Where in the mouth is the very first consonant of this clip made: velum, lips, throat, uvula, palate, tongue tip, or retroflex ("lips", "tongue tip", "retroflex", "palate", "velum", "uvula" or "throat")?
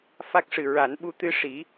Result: lips